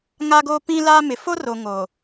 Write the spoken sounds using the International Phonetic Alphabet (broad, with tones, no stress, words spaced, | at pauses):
ŋa˦ɡoː˦pĩ˦laː˦ mɪ˨fo˦ro˨ ŋo˨